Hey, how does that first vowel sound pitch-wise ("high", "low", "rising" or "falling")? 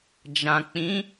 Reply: low